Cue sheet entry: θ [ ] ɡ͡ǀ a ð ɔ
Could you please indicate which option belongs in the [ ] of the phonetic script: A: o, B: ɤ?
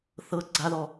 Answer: B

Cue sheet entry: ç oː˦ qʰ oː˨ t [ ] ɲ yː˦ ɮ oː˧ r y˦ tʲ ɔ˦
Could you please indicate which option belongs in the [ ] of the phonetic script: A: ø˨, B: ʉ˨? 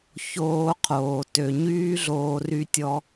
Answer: A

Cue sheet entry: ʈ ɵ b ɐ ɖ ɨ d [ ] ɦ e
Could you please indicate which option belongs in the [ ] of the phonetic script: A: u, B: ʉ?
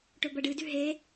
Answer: B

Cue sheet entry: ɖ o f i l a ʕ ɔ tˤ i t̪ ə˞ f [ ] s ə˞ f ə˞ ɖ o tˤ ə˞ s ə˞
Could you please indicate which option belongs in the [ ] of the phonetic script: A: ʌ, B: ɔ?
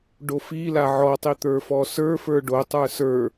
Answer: B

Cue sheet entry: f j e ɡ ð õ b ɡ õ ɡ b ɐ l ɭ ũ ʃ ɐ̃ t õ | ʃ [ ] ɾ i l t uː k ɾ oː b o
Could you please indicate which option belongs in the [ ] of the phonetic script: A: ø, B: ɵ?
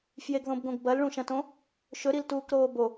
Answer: B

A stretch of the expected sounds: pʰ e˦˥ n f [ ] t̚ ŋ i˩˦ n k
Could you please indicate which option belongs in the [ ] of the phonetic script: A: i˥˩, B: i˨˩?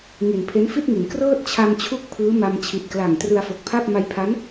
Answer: A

